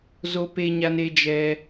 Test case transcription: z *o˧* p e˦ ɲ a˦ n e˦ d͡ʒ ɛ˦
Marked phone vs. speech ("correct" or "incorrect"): incorrect